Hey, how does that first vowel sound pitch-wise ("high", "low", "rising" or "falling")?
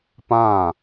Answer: falling